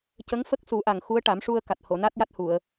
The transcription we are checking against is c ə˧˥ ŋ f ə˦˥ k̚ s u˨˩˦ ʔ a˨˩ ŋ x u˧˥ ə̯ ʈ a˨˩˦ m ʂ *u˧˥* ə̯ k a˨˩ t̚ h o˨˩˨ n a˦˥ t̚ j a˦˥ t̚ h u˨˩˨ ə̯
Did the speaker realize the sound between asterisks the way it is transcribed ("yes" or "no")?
no